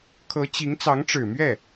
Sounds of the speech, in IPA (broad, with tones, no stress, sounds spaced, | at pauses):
kʰ ɤ˧˥ t͡ɕ i˧˥ ŋ t͡s ɑ˧˥ ŋ ʈ͡ʂ ɻ̩˨˩ m ɥ ɛ˥˩